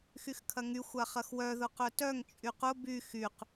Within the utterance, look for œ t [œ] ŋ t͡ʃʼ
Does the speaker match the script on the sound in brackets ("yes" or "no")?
yes